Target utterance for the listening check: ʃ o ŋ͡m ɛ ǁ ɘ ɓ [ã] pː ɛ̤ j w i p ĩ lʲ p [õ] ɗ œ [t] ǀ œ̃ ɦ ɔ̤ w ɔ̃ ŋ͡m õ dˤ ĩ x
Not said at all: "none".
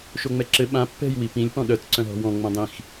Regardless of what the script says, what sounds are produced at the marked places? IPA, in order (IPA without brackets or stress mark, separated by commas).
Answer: ã, ɔ̃, t